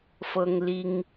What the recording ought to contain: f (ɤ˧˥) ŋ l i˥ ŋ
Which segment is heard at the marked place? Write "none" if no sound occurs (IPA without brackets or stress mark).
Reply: ɤ˥